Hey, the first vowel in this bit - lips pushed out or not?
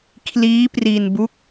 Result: no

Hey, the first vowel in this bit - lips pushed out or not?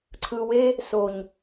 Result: no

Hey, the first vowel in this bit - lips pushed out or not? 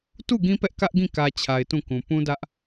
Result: yes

